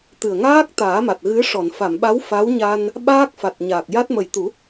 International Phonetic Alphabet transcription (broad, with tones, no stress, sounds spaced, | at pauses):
t̪ ɨ˨˩ ə̯ ŋ aː˦˥ k̚ t̪ aː˨˩˦ m a˨˩ t̚ ɣ ɨ˧˥ ʂ ɔ˨˩˨ n f a˨˩˨ m ɓ a˧˥ w f a˧˥ w ɲ a˧ n | ɓ aː˦˥ k̚ f a˨˩ t̚ ɲ aː˨˩ k̚ j a˦˥ t̚ m ə˨˩ j t̪ u˨˩˦